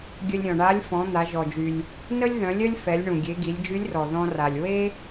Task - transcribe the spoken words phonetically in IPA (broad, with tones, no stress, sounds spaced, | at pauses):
ɡʲ ə˧ lʲ ɾʲ ɔ̃˩ ɳ a˧˥ lʲ f ɔ̃˩˧ n̪ a˩˧ ʒ ɔ˩ d͡ʒ y˩ lʲ | n ə˥ lʲ ð œ̃˩˧ lʲ œ˥ lʲ f ɛ˩˧ lʲ ɳ ũ˩ ɡʲ e˩˧ ɡ i˩˧ lʲ d͡ʒ y˧˥ lʲ r ɔ˩ ð ɔ̃˧ r a˩ lʲ w e˥